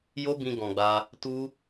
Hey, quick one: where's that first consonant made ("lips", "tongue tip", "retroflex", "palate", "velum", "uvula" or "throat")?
palate